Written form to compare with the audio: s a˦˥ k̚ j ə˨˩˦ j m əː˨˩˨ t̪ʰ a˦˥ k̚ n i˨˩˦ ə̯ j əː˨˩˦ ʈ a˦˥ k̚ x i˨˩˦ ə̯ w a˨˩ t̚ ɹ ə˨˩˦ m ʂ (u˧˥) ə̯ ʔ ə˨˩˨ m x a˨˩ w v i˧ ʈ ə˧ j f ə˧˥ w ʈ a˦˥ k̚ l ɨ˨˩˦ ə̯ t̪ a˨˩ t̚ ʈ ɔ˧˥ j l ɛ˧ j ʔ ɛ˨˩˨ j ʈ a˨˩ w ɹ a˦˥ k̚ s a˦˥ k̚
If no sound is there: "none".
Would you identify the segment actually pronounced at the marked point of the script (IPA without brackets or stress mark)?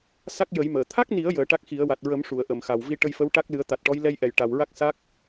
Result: u˨˩˨